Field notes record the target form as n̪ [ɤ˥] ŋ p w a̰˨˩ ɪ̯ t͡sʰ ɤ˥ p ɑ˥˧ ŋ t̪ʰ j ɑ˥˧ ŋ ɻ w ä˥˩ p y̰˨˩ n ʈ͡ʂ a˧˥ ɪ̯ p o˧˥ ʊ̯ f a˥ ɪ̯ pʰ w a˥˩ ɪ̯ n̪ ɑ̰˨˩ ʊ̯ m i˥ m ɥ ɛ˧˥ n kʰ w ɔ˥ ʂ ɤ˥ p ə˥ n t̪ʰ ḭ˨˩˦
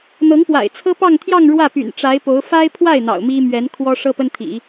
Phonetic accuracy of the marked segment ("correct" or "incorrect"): incorrect